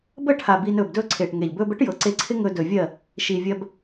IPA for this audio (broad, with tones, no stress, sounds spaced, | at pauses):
b ə˦˨ ʈʰ a˨ b iː˧ n ɵː˨ b d ɵː˦ ǀʰ eː˨ ʈ ŋ e˨ ʎ b ɵː˦ b ə˦ ʈ j ɤ˨ ǀ e˧ ǀʰ ɪ˦ ŋ ɵ˧ d ɵ˨ vʲ ɜ˦˨ | ʃ i˨ vʲ ɜ˧ b